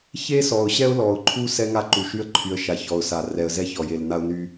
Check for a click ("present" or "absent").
present